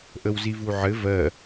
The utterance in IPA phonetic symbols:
ʔəwzivuʕɘ vɜ

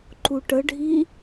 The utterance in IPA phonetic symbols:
ǃuʈəɖʱi

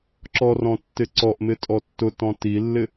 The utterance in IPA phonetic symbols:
ǁɔrɔ̃tːɪ ǀɔʔmɪtʼɔ tːʊtɔ̃ tilːɪ

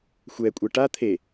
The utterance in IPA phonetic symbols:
xʷɛkʷʼɛ ʈa t̪ʰe

